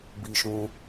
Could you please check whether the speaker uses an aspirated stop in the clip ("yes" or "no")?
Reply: no